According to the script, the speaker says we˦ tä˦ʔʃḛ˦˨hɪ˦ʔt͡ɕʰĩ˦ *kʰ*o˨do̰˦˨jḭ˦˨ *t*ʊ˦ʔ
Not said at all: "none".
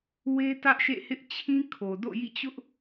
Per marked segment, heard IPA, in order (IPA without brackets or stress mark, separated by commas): kʰ, t͡ɕ